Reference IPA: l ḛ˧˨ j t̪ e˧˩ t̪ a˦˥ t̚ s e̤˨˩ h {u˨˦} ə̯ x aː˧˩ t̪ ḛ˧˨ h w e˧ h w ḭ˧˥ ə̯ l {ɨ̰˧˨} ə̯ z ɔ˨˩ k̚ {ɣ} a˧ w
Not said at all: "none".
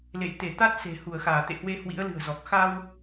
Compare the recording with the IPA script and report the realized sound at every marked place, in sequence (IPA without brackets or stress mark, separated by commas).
u˧˩, ɨ̤˨˩, x